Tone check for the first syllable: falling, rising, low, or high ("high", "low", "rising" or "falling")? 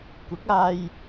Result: rising